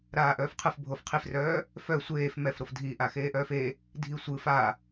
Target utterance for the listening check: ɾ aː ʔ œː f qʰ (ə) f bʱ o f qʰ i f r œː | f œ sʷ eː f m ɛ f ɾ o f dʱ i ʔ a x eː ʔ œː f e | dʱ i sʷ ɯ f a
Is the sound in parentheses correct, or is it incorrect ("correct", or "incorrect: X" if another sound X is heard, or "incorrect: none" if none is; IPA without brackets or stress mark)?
incorrect: ɯ